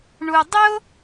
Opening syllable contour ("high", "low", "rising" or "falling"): low